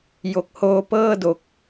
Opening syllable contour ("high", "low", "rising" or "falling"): low